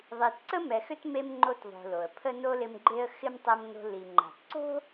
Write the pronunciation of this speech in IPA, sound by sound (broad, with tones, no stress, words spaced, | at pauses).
ðˤi˨tǀə˥ mɛ˨xʏ˥tme˦m ŋ͡ǃo˦tðˤo̤˨lo˩ə̯ pʰə˥ no˥lɪ˦mɡ͡ǃe˥ə̯ xɪ˥mtˤɛ˦mno̤˦ li˨ŋ͡ǃa̤˨tǀo̤˥